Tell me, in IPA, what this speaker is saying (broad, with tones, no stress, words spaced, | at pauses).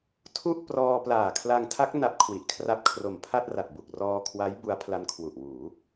tʰu˥˩ʔprɔː˧ plaː˨˩kʰla˧ŋtʰa˦˥k̚ na˦˥p̚kʰwi˨˩ʔkʰra˦˥p̚ kʰro˨˩mpʰa˥˩t̚ra˨˩t̚bu˨˩k̚ rɔː˧kʰwa˦˥j bu˦˥a̯pʰla˦˥n kʰwu˨˩ʔwuː˩˦